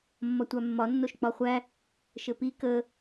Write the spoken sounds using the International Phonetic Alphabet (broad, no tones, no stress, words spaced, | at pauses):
mːɒtʷamːɒ nːoʃk͡pɒχʷæ | ʃɘpi kə